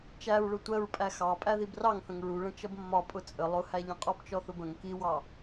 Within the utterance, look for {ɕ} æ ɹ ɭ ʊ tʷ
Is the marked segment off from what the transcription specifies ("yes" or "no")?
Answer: yes